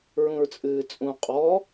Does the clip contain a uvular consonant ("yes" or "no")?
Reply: yes